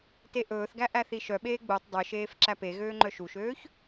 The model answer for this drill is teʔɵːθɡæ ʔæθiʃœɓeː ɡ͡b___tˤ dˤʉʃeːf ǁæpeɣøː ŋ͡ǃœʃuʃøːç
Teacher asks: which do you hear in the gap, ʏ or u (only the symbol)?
u